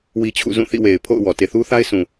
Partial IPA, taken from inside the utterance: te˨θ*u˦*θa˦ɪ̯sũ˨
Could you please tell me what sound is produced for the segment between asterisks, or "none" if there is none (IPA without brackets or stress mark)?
u˦